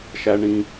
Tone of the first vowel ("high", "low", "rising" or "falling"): low